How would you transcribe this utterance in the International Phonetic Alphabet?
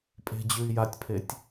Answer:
pʼ e̤ d͡ʑ ʉ i̯ j a tʲ pʰ e tʲ

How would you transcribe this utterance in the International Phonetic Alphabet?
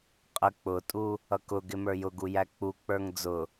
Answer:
qʼ ə k͡p ʊ tʼ u | ʌ k ʊ ɡ ɪ m ə˞ j ʊ ɡ u j æ k͡p u k͡p ə˞ ŋ d͡z ʊ

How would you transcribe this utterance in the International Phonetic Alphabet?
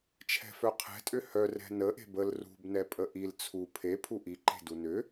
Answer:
t͡ʃʰ ɛ̤ f œ qʰ ɛ̤ tʼ ʏ h œ r ɛ̤ n ə ʔ e̤ b ə l r ṳ b n ɛ pʼ ə ʔ i l t͡sʰ u pʰ e pʰ u ʔ i ǃ e̤ d u n ʏ

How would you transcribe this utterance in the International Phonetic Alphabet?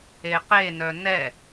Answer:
e q e n œ n ɛ

